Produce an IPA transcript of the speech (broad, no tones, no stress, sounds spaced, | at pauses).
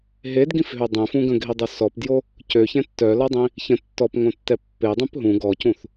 ɦ e d ɡ ĩ f ɦ ø dˤ ɛ̃ f ũ ɡ ə̃ ɡʱ i dˤ ø s ɔ p d j o | c ø ç ɛ̃ tː œ l ɔ dˤ ĩ | ç ə̃ tː ɔ p ŋ õ tː ɛ pː e dˤ ə̃ p ɦ ũ ɡ ɔ c ũ θ